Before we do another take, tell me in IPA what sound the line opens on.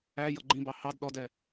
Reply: æ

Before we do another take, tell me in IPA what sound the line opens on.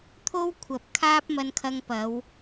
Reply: t̪ʰ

